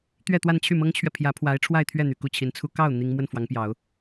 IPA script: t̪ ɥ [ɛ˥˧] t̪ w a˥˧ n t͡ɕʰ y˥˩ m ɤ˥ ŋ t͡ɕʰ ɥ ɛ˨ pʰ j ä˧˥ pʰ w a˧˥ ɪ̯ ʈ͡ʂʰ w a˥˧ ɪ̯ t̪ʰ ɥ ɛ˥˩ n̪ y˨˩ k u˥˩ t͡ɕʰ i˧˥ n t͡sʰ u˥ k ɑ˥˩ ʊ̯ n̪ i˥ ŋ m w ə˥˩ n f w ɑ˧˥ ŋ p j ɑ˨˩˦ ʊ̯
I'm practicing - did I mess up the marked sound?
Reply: no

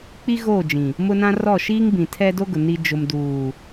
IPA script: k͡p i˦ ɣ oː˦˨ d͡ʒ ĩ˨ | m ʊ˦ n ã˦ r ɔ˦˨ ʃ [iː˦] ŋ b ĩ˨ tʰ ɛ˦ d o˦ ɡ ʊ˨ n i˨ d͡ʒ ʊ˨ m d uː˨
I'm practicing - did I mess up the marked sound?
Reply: no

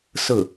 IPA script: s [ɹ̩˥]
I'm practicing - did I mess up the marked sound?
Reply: yes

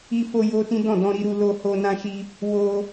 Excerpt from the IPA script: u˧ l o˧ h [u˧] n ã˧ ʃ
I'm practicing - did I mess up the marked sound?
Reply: yes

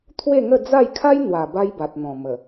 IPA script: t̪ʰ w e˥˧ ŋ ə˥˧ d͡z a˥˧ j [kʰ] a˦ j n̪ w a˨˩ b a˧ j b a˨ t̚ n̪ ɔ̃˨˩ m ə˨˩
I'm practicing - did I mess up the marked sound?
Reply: no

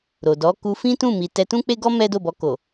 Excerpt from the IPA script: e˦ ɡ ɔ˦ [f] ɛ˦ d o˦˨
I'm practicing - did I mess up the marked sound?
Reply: yes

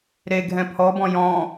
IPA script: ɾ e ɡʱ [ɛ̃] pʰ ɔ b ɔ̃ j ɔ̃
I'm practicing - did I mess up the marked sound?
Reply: no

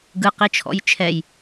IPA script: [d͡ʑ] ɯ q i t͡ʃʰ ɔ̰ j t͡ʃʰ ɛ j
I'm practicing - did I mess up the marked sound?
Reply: yes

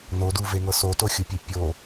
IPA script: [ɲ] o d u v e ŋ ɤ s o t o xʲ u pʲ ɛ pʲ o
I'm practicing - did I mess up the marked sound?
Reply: yes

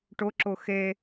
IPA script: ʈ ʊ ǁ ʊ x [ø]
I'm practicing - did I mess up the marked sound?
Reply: yes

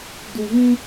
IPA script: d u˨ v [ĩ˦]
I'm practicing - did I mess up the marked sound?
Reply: no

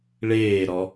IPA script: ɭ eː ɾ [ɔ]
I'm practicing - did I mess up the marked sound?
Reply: no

